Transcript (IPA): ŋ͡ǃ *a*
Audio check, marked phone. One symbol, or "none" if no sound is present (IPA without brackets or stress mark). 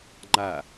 a